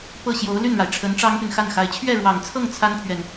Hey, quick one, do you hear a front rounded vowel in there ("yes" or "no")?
yes